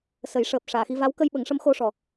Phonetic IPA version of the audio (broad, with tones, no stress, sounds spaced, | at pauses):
s ə˨˩˦ j ʂ əː˨˩ p̚ ʂ aː˨˩˨ x i˧ v a˧˥ w k ə˧ j ɓ ə˨˩˦ ŋ ʂ ə˧˥ m x o˧ ʂ ɔ˨˩